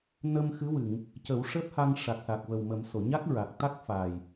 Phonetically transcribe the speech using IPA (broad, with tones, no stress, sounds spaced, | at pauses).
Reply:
n əː˧ m x ɨ˧˥ w ɨ˨˩˨ ŋ | c ə˨˩˦ w ʂ əː˦˥ p̚ h a˧ ŋ ʂ a˨˩ k̚ s a˨˩ k̚ v ə˨˩ w m ə˨˩˦ m s o˨˩˨ ɲ a˦˥ k̚ ɹ a˨˩ k̚ t̪ a˦˥ k̚ f a˨˩ j